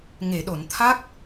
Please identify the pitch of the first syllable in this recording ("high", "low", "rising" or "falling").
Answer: low